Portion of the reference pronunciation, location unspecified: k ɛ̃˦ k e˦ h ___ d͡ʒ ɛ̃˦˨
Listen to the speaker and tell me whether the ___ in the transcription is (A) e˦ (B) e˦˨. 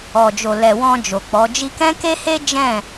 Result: A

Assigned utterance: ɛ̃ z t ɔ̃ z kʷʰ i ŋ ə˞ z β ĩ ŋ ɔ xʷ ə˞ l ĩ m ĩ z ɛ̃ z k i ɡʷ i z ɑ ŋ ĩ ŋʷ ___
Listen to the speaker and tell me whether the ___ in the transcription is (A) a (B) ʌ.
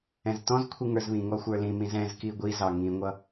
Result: B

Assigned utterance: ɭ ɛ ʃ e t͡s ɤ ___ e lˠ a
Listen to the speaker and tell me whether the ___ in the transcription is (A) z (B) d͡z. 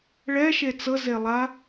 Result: A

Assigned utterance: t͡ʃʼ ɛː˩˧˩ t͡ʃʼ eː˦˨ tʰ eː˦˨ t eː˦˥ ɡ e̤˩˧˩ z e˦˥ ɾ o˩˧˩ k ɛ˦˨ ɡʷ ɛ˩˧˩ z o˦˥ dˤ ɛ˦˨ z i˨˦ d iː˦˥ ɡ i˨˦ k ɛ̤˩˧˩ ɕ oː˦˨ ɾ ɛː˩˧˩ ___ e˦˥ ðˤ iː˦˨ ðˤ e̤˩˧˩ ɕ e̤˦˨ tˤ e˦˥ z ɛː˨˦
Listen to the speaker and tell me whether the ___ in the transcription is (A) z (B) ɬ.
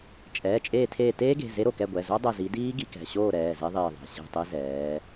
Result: A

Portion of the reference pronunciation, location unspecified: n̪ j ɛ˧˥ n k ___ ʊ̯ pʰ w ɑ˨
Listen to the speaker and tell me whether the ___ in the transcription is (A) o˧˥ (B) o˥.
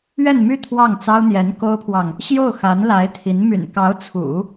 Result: B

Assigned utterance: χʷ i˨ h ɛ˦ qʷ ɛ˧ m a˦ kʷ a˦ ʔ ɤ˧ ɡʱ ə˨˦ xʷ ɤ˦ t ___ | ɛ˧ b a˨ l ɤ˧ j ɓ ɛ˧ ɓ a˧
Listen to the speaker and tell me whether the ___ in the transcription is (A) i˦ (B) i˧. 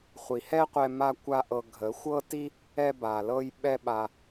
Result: A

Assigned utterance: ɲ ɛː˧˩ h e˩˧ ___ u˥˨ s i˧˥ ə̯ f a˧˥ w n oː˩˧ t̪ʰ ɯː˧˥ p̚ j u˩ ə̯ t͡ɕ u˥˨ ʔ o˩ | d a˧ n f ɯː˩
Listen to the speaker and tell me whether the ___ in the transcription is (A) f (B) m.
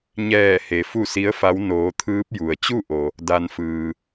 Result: A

